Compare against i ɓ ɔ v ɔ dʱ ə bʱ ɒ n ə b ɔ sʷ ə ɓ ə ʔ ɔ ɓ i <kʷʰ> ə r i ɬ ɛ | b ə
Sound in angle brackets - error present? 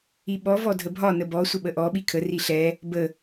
yes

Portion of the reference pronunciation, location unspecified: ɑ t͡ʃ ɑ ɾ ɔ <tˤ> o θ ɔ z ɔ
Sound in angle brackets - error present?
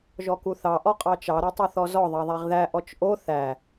no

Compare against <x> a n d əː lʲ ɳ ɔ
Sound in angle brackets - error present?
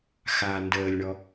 no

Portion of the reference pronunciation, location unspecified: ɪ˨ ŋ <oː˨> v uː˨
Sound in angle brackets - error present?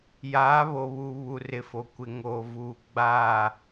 no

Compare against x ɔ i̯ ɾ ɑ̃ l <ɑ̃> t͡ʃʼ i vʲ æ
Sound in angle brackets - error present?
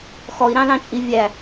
no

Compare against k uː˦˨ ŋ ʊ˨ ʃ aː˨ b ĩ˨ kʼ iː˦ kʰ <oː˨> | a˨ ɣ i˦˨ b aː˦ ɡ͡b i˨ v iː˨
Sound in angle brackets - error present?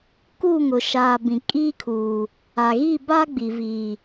yes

